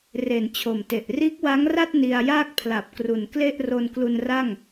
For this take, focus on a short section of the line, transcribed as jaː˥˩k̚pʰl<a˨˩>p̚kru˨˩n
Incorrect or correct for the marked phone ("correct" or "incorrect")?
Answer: correct